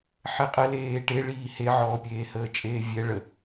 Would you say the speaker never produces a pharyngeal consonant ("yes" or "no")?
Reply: no